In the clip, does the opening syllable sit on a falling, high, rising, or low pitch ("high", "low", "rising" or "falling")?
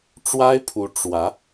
high